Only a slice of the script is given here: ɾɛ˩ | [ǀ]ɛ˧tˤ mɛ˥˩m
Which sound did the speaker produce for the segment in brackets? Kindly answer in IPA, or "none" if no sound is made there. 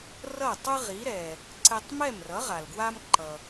ǀ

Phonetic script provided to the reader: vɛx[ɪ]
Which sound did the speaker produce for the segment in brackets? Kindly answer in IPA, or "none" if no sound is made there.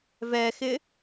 ɪ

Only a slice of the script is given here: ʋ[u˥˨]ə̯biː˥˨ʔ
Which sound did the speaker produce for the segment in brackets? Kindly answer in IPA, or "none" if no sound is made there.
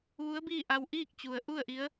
u˧˥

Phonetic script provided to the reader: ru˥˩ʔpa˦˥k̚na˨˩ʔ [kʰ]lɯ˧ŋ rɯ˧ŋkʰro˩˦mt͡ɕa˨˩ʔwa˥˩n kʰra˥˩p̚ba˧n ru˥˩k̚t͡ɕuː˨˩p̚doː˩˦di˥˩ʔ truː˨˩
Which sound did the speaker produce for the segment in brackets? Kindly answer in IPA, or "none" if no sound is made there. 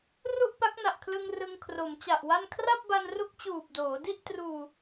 kʰ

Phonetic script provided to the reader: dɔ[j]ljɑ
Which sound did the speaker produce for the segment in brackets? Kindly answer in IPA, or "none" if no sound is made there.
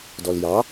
none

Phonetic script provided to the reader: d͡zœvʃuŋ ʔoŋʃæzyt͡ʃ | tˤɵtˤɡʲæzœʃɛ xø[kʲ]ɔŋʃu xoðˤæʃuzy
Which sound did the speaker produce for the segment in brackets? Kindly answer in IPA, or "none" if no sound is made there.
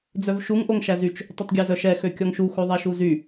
kʲ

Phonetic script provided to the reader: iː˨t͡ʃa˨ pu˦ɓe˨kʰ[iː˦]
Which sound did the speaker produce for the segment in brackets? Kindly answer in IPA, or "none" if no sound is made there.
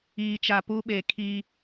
iː˦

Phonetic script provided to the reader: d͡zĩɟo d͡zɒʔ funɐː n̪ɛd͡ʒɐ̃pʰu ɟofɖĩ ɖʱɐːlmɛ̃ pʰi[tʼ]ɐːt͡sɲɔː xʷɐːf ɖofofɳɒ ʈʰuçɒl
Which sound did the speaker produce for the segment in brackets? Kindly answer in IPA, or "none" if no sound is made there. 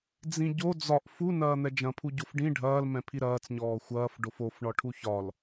ɾ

